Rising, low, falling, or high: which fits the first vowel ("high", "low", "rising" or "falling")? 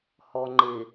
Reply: low